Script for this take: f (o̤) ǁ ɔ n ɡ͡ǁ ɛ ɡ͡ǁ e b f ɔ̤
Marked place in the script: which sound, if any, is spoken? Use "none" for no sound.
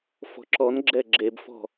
ɔ̤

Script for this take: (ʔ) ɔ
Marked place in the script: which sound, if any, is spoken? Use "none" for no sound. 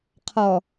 qʰ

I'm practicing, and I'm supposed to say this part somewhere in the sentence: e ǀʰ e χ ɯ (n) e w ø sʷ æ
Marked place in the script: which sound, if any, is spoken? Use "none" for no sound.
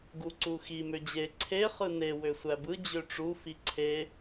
n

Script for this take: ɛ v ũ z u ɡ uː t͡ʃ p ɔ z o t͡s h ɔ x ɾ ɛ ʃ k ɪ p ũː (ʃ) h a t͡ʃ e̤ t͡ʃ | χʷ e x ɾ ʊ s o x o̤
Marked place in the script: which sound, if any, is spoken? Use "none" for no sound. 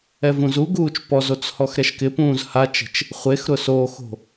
z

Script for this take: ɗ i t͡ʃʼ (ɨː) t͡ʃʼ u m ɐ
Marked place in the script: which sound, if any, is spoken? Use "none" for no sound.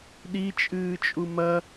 ɨː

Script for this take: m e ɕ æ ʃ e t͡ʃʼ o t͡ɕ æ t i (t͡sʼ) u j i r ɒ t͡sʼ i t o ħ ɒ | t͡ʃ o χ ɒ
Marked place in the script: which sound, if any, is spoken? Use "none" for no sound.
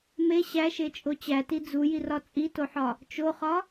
d͡z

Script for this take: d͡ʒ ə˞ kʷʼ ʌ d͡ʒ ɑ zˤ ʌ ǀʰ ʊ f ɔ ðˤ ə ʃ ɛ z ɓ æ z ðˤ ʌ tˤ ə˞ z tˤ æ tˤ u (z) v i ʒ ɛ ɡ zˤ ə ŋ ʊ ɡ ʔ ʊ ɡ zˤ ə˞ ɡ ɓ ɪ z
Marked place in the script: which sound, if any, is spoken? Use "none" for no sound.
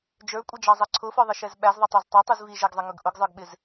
z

